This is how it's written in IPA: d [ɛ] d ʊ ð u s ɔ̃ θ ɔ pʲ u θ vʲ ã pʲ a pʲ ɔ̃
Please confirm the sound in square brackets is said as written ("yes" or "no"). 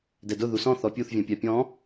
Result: yes